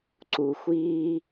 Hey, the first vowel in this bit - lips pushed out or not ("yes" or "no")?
yes